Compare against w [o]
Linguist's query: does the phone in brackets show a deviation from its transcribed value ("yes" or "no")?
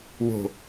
yes